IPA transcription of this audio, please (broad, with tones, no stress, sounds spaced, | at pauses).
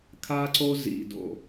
kʰ a˥ ǀ o˥ z ḭ˧ d o̰˧